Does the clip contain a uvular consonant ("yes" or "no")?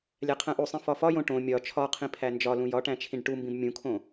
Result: yes